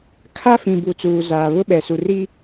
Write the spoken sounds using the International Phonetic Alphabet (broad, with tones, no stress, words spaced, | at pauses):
kʰa˦fĩ˨bu˨ t͡suː˨zaː˨βʊ˦ɓɛ˨ su˨ri˦